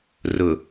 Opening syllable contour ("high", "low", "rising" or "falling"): low